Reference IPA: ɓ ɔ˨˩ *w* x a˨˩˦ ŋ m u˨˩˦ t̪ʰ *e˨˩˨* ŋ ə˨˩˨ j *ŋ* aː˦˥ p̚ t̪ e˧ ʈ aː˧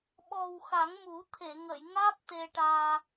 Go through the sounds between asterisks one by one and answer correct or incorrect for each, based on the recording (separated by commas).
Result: correct, correct, correct